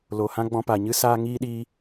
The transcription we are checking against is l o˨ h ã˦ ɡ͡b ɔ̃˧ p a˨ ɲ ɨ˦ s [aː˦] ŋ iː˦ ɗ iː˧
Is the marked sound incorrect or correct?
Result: correct